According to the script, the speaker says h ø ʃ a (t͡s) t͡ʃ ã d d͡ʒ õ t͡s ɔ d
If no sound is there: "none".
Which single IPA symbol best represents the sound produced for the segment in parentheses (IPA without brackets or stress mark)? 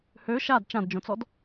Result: d